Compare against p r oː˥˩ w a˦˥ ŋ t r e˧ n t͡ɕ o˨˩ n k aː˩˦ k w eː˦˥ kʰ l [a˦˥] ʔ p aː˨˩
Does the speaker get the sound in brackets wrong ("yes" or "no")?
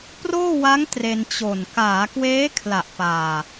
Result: yes